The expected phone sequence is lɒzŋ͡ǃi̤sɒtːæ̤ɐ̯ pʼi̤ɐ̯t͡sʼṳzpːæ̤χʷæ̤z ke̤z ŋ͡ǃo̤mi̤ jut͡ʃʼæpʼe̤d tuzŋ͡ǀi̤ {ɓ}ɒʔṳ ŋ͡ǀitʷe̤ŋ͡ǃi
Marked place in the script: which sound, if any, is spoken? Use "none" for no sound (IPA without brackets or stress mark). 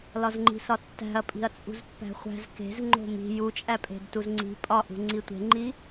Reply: pʼ